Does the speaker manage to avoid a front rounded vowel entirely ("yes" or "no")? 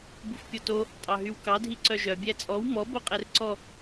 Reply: no